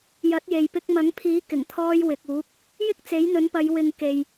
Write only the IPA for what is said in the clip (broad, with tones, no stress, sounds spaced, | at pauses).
j ɐ˨˥ t̚ j e˨ j p ɪ˧ k̚ m ɐ˨˥ ŋ pʰ iː˨˥ k ɪ˨˩ ŋ t̪ʰ ɔː˧ j w ɪ˨ k̚ uː˨˥ k̚ | j ɪ˥ k̚ t͡s e˨˥ j n̪ ɵ˨˥ n p ɐ˨˧ j w ɪ˨ ŋ k e˨ j